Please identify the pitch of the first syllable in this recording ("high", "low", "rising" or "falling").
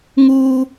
high